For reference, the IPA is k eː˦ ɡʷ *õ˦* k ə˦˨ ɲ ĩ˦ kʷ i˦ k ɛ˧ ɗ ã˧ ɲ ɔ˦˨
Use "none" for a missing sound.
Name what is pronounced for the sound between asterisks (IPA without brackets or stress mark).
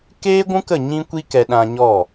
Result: ũ˦